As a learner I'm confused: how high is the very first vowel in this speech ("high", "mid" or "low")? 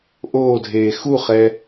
mid